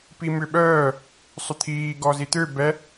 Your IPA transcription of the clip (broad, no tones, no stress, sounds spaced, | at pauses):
p i m ʏ ɓ œː | sˤ ʏ t̪ʰ iː ɡ ɔ z i t̪ ø b ɛ